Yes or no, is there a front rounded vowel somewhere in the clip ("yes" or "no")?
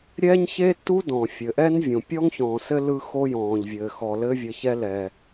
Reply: no